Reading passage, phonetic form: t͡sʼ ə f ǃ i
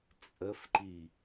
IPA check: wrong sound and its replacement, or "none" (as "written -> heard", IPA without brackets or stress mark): none